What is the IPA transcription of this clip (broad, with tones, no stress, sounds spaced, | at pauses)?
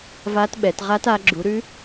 v a˦˥ t ɓ ɛ˨˦ t ʁ a˦˥ t a˨˦ ɡ͡ǁ u˨˦ ɾ ʉ˦˥